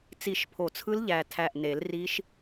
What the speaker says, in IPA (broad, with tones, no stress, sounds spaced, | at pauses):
t͡s i˧˩ ʃ pʰ o˨˩˦ t͡sʰ ɯ˦˥ l ʎ æ˧˩ tʰ æ˧˩ ʔ n e˨˩˦ l r i˦˥ ʃ